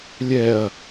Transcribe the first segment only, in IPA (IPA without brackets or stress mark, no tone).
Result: lʲ